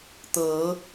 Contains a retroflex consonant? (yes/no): no